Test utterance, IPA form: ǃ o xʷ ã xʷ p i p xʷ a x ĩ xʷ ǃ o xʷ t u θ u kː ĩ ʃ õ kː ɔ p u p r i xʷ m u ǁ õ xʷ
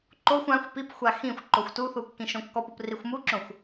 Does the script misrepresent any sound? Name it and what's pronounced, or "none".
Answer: none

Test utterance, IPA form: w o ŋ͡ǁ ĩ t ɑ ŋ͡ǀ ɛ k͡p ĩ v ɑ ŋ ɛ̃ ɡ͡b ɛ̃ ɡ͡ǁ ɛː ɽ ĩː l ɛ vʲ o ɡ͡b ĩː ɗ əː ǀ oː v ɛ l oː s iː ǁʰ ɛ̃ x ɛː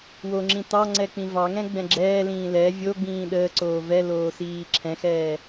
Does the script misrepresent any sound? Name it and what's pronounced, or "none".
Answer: ɽ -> l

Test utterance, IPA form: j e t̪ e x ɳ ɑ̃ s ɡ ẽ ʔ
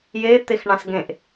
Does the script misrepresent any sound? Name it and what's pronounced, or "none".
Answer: none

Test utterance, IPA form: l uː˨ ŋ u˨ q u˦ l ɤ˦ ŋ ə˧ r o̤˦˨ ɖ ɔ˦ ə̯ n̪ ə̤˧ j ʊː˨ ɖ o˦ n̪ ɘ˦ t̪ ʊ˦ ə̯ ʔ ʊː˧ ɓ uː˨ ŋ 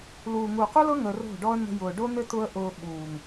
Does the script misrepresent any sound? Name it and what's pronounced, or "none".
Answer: none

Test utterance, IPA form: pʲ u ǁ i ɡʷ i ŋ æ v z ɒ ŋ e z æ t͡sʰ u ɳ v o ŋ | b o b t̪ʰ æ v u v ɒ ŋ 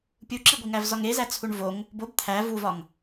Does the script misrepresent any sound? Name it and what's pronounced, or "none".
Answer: none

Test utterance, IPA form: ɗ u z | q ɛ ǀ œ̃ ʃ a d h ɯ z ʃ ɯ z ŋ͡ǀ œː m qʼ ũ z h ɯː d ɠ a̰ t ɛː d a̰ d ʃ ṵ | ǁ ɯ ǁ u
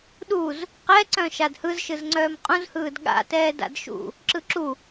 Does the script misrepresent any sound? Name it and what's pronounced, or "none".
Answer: none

